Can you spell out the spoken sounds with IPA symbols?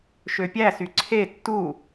ʃøpʲæsy ǀʰe tːu

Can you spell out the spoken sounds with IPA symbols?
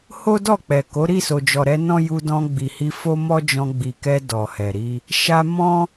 ho˦ dɔ˦˨k͡pɛ˨ko˨˦ ɾi˦˨so˨d͡ʒɔ˨ɾɛ˧ nɔ̃˦ ju˧dɔ̃˧ɡ͡bi˨hi˧ fo˦ mɔ˦d͡ʒɔ̃˧ ɡ͡bi˨kɛ˧ dɔ˨hɛ˨ɾi˧ | ʃa˧ mɔ̃˦

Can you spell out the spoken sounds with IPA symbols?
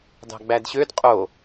dɑ̤ɡ͡bædɕød qʼo

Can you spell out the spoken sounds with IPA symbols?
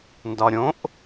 ndɒɾʲõʔ

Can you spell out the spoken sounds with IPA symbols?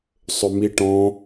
sˤʏmiʈɔ̃

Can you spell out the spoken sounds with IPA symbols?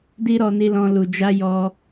di˦ɾɔ˧ni˧lɔ̃˧ lu˨d͡ʒa˧ jɔ˧

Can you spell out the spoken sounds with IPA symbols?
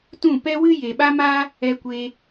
tũ˦˨pɛ˦wɨ˦ je˨ɓa˦ma˦ | ɛ˧kʷe˧

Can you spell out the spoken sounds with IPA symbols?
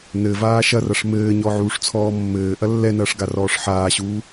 nɘ vaːʃɐrɐʂ mɘːɲɔ ʕuːʂt͡sʰɔːmːɘːʔɐ lːɛnɐːʂ ɡarɔːʂħaːɕuː

